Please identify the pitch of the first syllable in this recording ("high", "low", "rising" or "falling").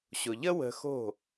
low